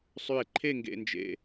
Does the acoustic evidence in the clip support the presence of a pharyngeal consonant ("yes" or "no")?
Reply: no